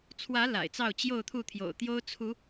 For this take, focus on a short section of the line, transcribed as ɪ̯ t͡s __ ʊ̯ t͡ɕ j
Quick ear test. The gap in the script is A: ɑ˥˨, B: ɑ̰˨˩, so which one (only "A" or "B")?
A